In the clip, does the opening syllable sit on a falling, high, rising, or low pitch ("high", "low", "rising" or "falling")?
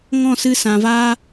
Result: falling